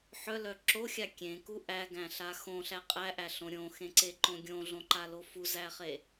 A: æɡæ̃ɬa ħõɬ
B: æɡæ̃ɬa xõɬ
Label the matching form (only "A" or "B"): B